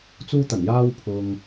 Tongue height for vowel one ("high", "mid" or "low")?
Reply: high